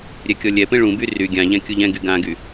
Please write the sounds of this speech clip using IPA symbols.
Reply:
ɾʲ ɛ kʲ ɔ lʲ ɛ p ẽ ɭ ũ b y r y ɡʲ ã ʎ ɛ̃ kʲ u ʎ ɛ̃ ɡ y ɡ ã ɡ y

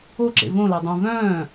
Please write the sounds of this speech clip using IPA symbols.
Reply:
o ǁ ḛ v õ l a dˤ ũ v œ̃ː

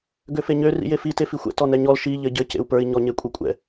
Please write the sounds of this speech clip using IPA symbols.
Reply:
ɡ ø f e ɲ ø r ḭ j e f i t e f i xʷ ɛ̰ t ɔ n ɛ ɲ ɔ l ʃ i ʎ ɘ ɟ ɘ c ḛ u̯ p ə˞ i̯ ɲ ɔ ɲ e kʷʼ ɯ kʷʼ ɛ̰

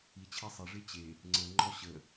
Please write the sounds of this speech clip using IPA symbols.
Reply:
i t͡ɕʰ e sˤ e ʐ e t͡ɕ e | ŋ͡ǀ ə ŋ͡ǃ ɔ ɕ ə

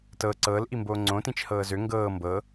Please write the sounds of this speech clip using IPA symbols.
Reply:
t ɤ ǀ ɤː l ʔ i m b oː ŋ͡ǀ õ t ĩ t͡ʃ h ɤː z ø ŋ ɡ ɤː m b ɤ

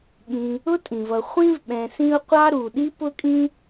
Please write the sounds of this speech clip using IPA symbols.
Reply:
ɠ ĩ˨ | ʊ˥ tʼ ĩ˩ v ʌ˨ χʷ ĩ˥ v ɓ ɛ̃˨ s ĩ˦ ʊ̯ qʷ ɑ˥ ɾ u˨ ɗ i˥ p ʊ˥ kʼ ĩ˥

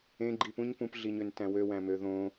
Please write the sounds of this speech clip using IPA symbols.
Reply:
ẽ ɡ͡ǃ i p ũ ɲ p ũ p ɮ i ɲ ø n t æ̃ w ø w æ̃ m ø ð õ

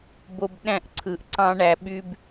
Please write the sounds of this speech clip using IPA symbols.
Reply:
b o˧ b ɗ æ̃˦˨ ʔ ǀʰ ɯ˨ ʔ ǀ ɑ̃˦ ɳ æ˧ ɓ y˦ b

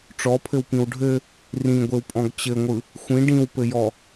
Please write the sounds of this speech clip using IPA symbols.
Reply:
ʈ͡ʂ ɔ pʰ ɘ w p ĩ w ɖʱ ɘ | r ĩ ɡʷ e w pʼ ɔ̃ ɡ t͡ɕ ɘ ŋʷ ɯ | xʷ ĩ ɖ ĩ w p ɘ j ɔ

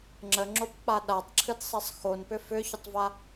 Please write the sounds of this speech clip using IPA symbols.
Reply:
ŋ͡ǁ ə ŋ͡ǁ o p k͡p a ɗ a tˤ ǁʰ ɨ d sˤ ɛ sˤ x o n p ʏ f ʏ ç ʏ tˤ v a

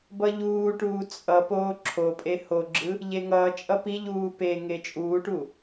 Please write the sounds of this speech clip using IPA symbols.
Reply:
b ʌ ʎ uː ʈ uː t͡sʼ ʌ p oː ǁʰ o pʼ e h o ɡ͡ǁ ɯ | ʎ e ŋ ʌː t͡ʃʼ ʌ p i ʎ uː p e ŋ e t͡ʃʼ uː ʈ u

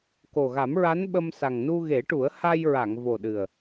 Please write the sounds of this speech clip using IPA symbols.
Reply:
k o˨˩ ɣ a˨˩˦ m ɹ a˧˥ n ɓ ə˧ m s a˨˩ ŋ n u˧ ɣ e˨˩˦ ʈ u˨˩˦ ə̯ h a˧ j ɹ a˨˩˨ ŋ v o˨˩ ɗ ɨ˨˩ ə̯

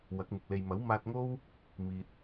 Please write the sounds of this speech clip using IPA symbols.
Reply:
w ɐ˨˥ k̚ m ɪ˨ k̚ l e˨ j m ɐ˨˥ w m aː˧ t̚ ŋ o˥ w | m iː˨ t̚

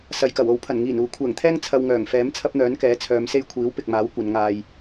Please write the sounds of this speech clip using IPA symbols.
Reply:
s ɐ˨ j k ɐ˨˩ w o˨˥ w pʰ ɐ˨˩ n ŋ iː˨˩ n uː˨ kʷʰ ɛː˨˩ ŋ t̪ʰ ɛː˥ ŋ t͡sʰ ɐ˧ w ŋ œː˨˩ ŋ f ɛː˨˥ m t͡sʰ ɐ˥ p̚ n̪ œː˨˥ n k ɛː˨˥ t͡sʰ œː˨˧ m s e˥ j kʷʰ iː˨˥ w p ɪ˨ k̚ m aː˨˥ w kʷ ɐ˨˧ n ŋ aː˧ j

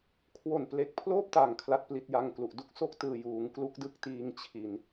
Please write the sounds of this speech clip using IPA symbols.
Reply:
kʰ w o˨˩ n p l e˨˩ k̚ pʰ l oː˥˩ p̚ t a˨˩ ŋ kʰ l a˦˥ t̚ p l i˦˥ t̚ j a˧ ŋ k l u˨˩ ʔ d u˥˩ k̚ s o˥˩ k̚ t ɯː˨˩ j uː˩˦ ŋ k l u˦˥ k̚ d ɯ˥˩ k̚ t iː˧ ŋ t͡ɕʰ i˨˩ n

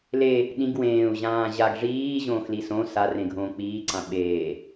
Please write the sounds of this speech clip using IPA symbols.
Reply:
l e | ɗ ĩ ɡ w ẽː u̯ ʑ ãː ʑ a ɡ ʐ iː ʑ õː x l i s õ s a r ẽ ɡʱ õː k͡p iː ǀ ã ɓ eː

